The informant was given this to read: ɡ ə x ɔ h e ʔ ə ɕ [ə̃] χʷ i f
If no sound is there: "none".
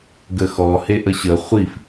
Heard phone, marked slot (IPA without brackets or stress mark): ə